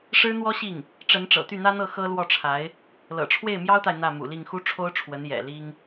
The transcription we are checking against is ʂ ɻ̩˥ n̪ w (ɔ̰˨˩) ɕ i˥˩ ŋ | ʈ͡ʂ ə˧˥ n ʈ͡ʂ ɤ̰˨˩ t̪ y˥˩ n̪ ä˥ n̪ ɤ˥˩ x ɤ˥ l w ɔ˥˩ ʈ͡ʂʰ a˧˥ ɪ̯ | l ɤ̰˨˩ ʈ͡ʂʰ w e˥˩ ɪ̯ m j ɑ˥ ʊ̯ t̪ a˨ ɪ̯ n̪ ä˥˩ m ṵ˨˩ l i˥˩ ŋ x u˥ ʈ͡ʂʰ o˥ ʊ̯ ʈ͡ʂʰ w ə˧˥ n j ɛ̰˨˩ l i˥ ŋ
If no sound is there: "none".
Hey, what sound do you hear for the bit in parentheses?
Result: ɔ˥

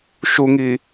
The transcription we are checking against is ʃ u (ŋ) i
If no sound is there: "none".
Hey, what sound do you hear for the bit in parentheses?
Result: ŋ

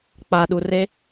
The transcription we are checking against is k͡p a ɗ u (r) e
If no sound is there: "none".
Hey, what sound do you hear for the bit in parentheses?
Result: r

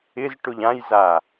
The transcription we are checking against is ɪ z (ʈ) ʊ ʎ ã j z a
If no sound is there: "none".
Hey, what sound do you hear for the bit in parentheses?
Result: ʈ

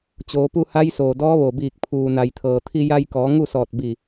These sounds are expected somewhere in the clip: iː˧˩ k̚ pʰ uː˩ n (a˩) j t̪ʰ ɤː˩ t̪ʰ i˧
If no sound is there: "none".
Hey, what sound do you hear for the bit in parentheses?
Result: a˩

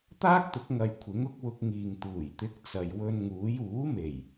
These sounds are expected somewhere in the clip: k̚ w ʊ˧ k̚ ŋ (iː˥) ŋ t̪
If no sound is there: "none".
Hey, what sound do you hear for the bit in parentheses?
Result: iː˨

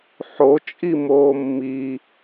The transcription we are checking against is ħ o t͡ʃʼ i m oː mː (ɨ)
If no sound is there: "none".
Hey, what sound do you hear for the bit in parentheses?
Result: i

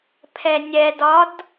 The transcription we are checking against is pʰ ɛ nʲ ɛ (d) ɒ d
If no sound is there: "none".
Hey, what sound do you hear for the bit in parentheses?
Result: d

